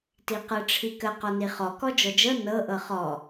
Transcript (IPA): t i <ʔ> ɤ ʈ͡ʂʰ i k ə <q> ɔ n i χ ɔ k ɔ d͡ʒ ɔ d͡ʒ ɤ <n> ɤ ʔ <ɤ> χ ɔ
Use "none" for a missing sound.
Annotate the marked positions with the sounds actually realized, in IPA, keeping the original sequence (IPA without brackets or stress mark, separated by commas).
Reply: q, q, n, ɤ